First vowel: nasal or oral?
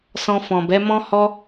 nasal